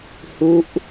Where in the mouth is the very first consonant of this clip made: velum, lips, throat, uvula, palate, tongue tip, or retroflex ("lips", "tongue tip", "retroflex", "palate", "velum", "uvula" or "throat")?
throat